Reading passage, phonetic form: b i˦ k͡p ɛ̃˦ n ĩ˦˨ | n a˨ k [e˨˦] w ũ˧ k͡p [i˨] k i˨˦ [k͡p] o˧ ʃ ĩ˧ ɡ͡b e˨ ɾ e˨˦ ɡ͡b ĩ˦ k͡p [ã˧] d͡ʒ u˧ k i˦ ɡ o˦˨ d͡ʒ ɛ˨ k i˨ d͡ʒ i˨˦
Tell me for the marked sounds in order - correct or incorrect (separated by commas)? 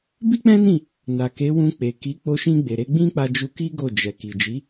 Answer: correct, incorrect, correct, incorrect